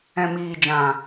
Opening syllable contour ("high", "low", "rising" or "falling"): low